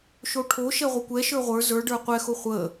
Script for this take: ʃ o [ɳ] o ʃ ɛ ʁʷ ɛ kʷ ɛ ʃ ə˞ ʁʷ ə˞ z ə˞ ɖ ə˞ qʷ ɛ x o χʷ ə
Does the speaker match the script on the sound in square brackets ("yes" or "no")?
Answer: no